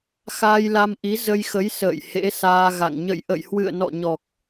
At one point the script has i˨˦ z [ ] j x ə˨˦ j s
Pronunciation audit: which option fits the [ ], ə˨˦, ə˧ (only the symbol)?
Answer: ə˧